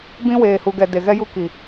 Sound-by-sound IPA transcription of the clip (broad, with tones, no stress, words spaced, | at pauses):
bĩ˦ weː˨hu˨ɡɛ˨ de˨ɣɛ˦ju˦ ki˨